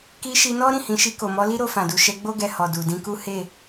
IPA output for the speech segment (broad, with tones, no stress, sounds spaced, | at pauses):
k i˧ ʃ i˧ n ɔ˦ ɾ ĩ˦˨ h ĩ˨˦ ʃ i˧ k o˨ m ɔ˨˦ l i˦ ɾ o˧ f ã˨ d u˨ ʃ ɛ˧ ɡ͡b o˦ ɡ ɛ˧ h ɔ˨ d u˨ d ĩ˧ k u˦ h e˦˨